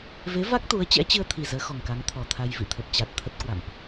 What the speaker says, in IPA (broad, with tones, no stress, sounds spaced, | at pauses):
v e˨˦ v a˦˥ k̚ t̪ u˨˦ ə̯ t͡ɕ ɛ̰˧˥ t͡ɕ ɨ˧ ə̯ t̪ʰ i˨˩ z əː˨˦ x ɔ˨˩ ŋ k a˨˦ ŋ t̪ʰ ɔ˨˩ t̪ʰ a˧ j v ḭ˧˨ t̪ʰ ə˨˩ p̚ t͡ɕ a˨˩ t̚ t̪ʰ ə˦˥ t̚ k w a̰˧˨ m ʔ